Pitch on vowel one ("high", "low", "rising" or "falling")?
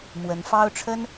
rising